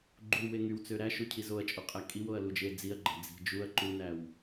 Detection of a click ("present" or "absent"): present